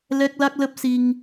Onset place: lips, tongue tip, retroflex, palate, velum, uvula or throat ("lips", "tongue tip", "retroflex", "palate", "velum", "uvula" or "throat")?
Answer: tongue tip